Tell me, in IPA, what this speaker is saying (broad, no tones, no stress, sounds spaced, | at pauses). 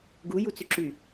ɡ u j u t͡s y ǁ y